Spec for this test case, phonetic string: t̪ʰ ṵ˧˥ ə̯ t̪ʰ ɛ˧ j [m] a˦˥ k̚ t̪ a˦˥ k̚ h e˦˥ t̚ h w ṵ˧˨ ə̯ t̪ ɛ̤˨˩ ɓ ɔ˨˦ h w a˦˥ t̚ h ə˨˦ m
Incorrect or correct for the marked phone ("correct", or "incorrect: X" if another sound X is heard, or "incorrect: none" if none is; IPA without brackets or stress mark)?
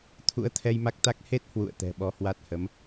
correct